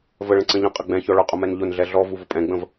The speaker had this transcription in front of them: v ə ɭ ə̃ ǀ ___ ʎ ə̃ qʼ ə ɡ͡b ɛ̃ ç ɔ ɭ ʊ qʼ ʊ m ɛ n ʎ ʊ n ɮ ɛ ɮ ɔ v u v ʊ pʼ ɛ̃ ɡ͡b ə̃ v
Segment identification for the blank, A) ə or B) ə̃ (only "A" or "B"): B